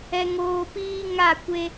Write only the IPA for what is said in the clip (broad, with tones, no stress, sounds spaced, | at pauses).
ɛ˨ ŋ oː˨ p iː˦ ŋ a˦˨ kʷ e˦